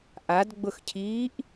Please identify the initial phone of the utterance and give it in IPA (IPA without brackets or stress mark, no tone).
ʔ